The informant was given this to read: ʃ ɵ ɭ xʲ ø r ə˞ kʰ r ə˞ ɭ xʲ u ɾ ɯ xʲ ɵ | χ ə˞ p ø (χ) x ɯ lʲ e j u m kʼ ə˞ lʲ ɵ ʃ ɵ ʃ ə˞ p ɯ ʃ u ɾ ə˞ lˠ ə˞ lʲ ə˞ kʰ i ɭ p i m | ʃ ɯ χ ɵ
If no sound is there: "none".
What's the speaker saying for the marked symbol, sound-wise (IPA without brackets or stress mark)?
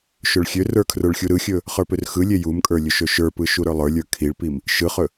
r